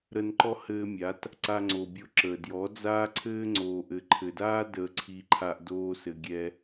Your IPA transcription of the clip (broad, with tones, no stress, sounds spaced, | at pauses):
ɾ ə˧ n ǃ ɔ˦ h ɘː˧ mʲ a˨˦ t | ǀ a˧ ŋ͡ǀ o˨ bʲ o˧ ǁ əː˨ d j ɔ˨˦ d͡z aː˦ ǀʰ ɘː˦ ŋ͡ǀ oː˨ ʔ ɘ˨ ǃʰ ɘ˨ d aː˦ d əː˧ ǀʰ i˧ ǃʰ a˧ ʔ d oː˦ s ɘ˧ ɡʲ ɛ˦